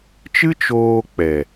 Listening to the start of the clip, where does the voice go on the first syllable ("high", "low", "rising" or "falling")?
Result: high